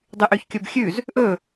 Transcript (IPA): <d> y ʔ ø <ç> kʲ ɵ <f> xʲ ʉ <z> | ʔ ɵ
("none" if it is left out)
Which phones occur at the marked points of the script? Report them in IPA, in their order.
dˤ, ç, b, z

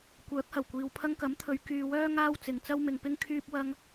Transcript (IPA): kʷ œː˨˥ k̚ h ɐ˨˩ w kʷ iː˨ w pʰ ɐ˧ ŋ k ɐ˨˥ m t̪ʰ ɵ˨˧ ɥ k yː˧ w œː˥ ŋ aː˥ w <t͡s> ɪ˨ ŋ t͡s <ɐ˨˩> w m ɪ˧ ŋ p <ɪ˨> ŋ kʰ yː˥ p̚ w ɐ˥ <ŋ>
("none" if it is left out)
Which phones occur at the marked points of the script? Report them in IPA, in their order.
t͡s, ɐ˥, ɪ˥, ŋ

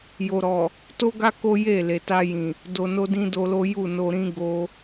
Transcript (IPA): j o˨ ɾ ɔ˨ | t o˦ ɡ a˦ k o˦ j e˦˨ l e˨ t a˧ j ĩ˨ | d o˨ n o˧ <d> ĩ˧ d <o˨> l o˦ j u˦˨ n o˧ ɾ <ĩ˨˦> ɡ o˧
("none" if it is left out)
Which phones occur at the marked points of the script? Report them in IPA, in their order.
d, o˧, ĩ˦

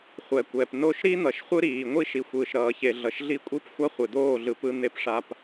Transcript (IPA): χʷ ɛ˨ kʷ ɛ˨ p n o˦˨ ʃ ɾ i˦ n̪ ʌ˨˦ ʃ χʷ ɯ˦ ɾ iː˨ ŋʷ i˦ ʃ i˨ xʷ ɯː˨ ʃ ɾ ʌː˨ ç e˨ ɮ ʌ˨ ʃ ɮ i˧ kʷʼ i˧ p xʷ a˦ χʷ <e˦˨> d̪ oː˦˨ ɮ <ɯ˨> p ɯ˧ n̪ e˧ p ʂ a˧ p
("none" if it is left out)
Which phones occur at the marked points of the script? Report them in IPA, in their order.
e˨, ɯ˨

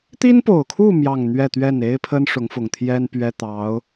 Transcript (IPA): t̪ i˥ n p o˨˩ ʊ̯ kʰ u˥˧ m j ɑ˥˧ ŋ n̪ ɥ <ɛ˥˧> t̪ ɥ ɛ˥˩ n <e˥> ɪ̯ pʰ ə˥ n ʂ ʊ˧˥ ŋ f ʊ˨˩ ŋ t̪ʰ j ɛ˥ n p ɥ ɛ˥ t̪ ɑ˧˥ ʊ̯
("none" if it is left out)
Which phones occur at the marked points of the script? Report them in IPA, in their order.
ɛ˥˧, e˥

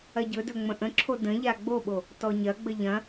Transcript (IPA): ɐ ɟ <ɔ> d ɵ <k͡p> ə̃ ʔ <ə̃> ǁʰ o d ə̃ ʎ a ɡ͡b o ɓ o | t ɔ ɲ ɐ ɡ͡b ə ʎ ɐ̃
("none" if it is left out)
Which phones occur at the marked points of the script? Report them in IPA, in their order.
ɵ, ŋ͡m, ə̃

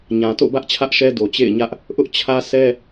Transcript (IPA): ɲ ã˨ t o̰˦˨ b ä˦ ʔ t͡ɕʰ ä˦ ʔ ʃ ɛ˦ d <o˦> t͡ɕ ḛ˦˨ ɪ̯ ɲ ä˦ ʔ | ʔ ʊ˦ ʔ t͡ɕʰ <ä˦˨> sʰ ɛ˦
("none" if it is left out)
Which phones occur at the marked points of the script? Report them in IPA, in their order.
o˨, ä˦

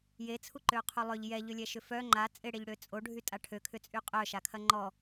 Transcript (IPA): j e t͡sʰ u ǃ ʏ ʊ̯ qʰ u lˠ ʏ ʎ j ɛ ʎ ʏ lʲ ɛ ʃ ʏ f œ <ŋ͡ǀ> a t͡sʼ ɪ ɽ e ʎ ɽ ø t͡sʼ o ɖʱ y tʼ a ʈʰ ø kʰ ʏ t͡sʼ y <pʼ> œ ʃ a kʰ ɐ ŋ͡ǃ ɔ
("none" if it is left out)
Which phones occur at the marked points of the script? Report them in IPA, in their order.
ŋ͡ǃ, qʼ

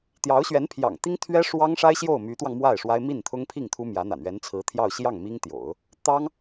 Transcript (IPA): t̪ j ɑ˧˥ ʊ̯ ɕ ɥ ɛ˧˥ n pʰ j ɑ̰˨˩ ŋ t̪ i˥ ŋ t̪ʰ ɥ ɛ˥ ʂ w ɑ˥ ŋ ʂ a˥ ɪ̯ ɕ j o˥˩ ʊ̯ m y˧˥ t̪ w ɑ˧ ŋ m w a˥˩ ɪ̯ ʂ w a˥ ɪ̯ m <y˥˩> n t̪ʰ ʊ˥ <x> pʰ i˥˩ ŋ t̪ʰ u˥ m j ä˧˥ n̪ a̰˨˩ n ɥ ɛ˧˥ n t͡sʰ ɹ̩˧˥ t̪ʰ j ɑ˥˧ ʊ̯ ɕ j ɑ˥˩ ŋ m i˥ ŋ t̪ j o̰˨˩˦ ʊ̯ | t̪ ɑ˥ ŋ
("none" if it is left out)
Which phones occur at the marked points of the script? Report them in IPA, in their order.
i˥˩, ŋ

